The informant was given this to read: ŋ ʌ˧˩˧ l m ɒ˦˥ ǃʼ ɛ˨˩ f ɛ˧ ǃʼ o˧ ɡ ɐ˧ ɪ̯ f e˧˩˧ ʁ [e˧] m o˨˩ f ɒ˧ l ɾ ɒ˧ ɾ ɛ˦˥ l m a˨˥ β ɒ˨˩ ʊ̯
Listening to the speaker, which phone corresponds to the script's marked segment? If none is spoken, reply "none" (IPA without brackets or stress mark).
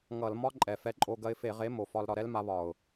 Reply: e˨˥